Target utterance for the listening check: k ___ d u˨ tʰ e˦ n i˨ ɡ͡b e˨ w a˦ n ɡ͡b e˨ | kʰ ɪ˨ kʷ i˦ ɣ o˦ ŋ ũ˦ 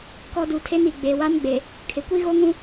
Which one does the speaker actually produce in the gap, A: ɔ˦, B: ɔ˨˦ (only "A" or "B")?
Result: A